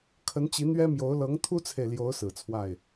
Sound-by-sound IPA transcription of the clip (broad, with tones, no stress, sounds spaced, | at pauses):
kʰ ə˧˥ n t͡ɕ i˧˥ n̪ ɥ ɛ˥ m j o˧˥ ʊ̯ l ɤ˧˥ ŋ t̪ʰ u˥ t͡sʰ e˨ ɪ̯ l j o˧˥ ʊ̯ s ɹ̩˨˩ t͡sʰ w a˥˩ ɪ̯